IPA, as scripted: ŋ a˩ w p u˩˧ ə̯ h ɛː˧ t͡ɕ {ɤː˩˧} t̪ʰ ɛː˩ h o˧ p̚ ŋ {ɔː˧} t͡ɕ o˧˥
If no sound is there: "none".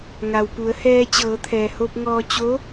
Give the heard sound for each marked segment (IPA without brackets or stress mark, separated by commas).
ɤː˩˧, ɔː˧